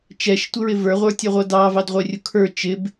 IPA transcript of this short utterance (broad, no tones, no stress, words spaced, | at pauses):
t͡ʃɛʃtʷɪɹɪ və˞ʁʷə˞tʲʌʁʷʌ dɑvɑdʁʷɛrʲʊ kʰə˞ t͡ʃɪb